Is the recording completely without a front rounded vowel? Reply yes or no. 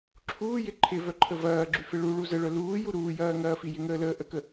no